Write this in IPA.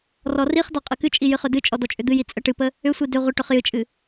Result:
r ɔ r i χ d ɔ qʼ ɨ k ɨ t͡ʃʼ i j ɨ χ ʏ d ɨ t͡ʃʼ ɔ d ɔ t͡ʃʼ ʏ d̪ ɨ j i t͡sʼ ə ʈ ɨ p ə | ʏ sʷ i d ʏ ʁʷ ə ʈ ʏ χ j ɨ t͡ʃʼ ɨ

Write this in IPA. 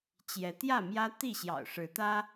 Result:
t͡ɕ j ɛ˨˦ t̪ j ä˥˨ m j ä˦ t̪ i˥˨ ɕ j ɑ̰˨˩ ʊ̯ ʂ ɻ̩˨˦ t̪ ä˦

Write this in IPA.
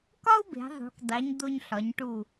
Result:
k ɒ˥ u̯ b e̤˩˧ ðˤ ṳ˩˧ k dˤ i˩˧ ɲ d̪ o˧ ɲ ɬ ɒ˩˧ ɲ ʈ u˧˩

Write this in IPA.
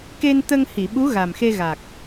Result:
k e˧ n t̪ ə˧ ŋ h i˨˩˨ ɓ u˧˥ ɣ a˨˩ m x e˧ ɣ a˨˩ k̚

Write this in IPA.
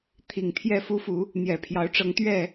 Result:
t̪ʰ i˨˩ ŋ t̪ʰ j ɛ˥˨ f u˦ f u˨˦ | n̪ j ɛ˨˩ pʰ j ɑ˨˦ ʊ̯ ʈ͡ʂ ɤ˨˦ ŋ t̪ ɥ ɛ˥˨

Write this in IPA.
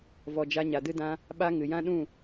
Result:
v ɔ˨ d͡ʒ a˧ ɲ a˨ d ɨ˧ d ã˧ | ɓ a˦ ŋ ɨ˨ j ã˦ ɗ ũ˦˨

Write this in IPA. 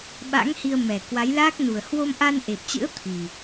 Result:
ɓ a̰˧˥ ŋ h i˧ ə̯ m ɛ˨˩ k w a˨˦ j l aː˦˥ k̚ n u˨˩ ə̯ h w o˧ m ʔ a˧ n ʔ e˨˩ p̚ t͡ɕ ɨ̰˧˥ ə̯ t̪ʰ i˨˩

